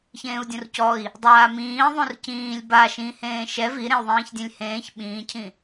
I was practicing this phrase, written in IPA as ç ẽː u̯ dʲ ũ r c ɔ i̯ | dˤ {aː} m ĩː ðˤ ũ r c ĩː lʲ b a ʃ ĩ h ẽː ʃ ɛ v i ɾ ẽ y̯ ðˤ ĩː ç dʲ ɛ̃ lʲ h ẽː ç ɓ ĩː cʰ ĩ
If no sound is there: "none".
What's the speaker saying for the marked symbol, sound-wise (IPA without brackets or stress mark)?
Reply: aː